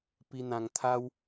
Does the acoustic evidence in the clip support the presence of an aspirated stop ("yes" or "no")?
yes